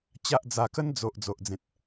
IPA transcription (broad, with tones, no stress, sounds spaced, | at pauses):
t͡ɕ a˦ ʔ d͡z a˧ k ə˦ n d͡z o˨ ʔ d͡z o˨ ʔ d͡z ẽ˨ t̚